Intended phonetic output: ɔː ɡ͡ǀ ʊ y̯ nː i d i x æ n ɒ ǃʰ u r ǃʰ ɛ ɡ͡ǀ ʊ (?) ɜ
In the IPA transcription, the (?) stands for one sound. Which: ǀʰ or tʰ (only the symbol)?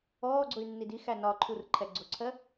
ǀʰ